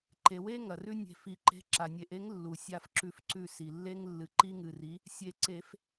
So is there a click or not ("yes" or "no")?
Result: yes